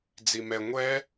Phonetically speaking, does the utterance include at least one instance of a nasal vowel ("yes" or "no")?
no